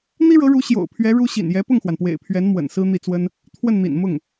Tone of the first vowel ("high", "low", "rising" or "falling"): high